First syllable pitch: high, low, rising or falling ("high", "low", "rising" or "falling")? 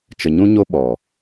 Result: low